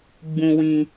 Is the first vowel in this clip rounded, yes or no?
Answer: yes